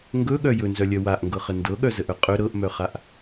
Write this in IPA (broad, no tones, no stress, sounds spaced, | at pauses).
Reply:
ŋ ɡ ɵ ɠ œ j ɵ n z œ lʲ œ w a ʔ ŋ ɡ ɤ χ ə n d ɤ ɠ œ z ə ʔ œ qʼ ɵ ɾ ɤ ʔ m œ χ a ʔ